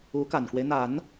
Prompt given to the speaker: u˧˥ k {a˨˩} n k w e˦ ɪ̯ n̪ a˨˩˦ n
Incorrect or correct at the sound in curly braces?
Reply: correct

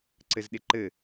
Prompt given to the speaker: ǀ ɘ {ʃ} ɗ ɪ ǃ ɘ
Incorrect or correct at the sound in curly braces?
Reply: incorrect: z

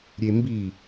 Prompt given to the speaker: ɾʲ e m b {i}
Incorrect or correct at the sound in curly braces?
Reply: correct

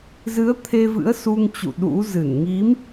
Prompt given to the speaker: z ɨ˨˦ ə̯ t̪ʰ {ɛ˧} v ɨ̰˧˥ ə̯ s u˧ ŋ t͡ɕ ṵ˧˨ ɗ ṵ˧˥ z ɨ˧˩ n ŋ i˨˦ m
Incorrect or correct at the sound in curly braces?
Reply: incorrect: e˧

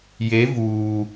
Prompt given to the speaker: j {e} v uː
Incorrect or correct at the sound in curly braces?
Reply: correct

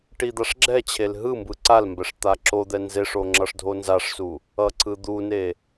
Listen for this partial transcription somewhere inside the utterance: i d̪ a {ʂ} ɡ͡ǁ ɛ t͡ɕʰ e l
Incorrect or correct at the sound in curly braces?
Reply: correct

